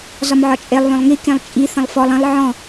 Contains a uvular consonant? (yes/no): no